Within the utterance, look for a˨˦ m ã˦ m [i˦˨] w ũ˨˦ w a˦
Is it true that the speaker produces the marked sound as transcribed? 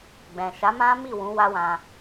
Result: yes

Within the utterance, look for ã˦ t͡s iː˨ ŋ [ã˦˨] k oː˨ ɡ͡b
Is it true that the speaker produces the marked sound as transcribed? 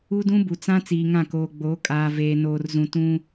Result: yes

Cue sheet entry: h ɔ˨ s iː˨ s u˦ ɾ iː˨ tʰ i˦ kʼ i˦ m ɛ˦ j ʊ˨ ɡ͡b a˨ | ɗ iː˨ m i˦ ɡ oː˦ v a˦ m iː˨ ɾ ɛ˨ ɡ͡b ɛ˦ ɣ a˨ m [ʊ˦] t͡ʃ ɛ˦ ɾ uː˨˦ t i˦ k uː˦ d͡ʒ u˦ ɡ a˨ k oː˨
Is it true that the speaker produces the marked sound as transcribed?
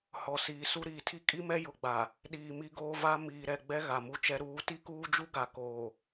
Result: no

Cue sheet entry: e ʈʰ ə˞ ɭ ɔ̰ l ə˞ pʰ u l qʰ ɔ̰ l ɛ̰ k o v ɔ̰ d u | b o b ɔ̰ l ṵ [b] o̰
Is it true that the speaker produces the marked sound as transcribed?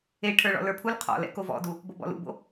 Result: yes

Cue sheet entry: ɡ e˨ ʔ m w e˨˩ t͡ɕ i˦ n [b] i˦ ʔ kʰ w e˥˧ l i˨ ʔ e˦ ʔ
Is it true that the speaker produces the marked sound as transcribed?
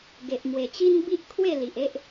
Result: yes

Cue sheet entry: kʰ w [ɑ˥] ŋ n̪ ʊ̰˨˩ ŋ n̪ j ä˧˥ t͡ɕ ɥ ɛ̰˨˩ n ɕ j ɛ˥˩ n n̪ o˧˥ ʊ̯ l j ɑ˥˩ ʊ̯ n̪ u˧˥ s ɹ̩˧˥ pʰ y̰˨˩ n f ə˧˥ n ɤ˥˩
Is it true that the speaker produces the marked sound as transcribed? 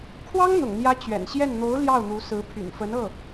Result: yes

